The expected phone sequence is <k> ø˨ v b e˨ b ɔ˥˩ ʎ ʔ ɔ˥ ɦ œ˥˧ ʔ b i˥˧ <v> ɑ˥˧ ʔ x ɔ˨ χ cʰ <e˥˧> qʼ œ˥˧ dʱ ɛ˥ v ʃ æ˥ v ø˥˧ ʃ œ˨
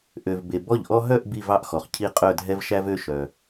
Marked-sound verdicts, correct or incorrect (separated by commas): incorrect, correct, incorrect